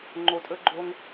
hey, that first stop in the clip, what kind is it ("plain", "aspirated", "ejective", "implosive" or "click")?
click